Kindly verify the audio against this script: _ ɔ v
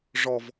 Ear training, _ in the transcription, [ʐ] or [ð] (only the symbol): ʐ